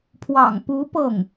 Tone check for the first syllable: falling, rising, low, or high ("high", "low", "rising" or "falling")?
low